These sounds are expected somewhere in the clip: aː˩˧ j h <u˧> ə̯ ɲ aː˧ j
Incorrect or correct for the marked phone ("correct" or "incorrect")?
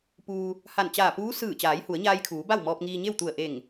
incorrect